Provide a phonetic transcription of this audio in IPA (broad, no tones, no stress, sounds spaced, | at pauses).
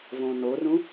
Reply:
v õ n o r ũ